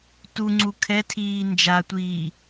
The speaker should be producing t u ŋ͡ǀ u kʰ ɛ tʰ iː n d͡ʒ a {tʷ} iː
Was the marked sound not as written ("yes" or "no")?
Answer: no